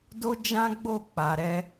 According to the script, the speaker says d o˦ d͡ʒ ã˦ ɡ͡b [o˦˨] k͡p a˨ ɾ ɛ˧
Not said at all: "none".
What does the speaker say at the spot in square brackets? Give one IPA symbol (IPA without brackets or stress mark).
o˦˨